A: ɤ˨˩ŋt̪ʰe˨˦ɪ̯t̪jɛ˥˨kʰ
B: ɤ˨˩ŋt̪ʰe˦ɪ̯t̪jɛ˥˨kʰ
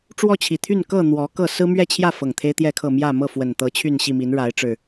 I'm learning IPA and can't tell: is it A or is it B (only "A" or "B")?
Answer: B